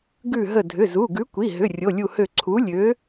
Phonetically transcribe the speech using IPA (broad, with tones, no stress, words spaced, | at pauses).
ɡʉ˧˩ ɦə˧˩ dʱʏ˩˧˩zu˩˧˩ ɡʉ˨˥kʷi˩˧˩ɦʏ˩˧˩ rʲo˩˧˩lʲu˧˩hø˧˩ ǀʰu˨˥lʲø˨˥